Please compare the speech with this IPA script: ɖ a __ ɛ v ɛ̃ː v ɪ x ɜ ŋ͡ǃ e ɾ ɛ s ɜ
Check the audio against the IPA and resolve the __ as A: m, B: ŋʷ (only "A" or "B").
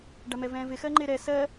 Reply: A